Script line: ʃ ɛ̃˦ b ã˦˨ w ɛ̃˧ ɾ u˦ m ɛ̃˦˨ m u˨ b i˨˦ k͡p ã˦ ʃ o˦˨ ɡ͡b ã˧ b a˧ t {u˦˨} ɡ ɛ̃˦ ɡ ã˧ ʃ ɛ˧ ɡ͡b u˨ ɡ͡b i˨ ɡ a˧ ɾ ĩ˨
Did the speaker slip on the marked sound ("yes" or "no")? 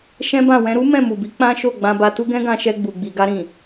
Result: yes